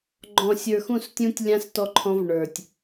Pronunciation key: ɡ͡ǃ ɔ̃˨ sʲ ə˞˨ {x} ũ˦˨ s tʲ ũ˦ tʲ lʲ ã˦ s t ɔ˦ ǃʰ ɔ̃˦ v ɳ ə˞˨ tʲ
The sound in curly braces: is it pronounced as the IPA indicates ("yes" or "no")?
yes